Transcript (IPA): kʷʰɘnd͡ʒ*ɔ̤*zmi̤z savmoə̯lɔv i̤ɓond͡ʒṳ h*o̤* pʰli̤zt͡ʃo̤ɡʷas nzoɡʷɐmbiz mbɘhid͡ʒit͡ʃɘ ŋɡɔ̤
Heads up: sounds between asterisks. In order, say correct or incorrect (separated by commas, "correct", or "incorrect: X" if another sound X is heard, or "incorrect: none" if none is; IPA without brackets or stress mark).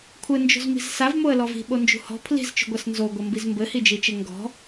incorrect: o̤, incorrect: ɔ̤